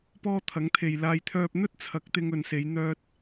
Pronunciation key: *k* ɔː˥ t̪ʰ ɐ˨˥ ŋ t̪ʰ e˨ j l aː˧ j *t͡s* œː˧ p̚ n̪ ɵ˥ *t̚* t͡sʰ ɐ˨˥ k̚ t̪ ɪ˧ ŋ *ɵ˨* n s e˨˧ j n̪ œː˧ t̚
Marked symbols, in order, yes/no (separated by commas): no, no, yes, yes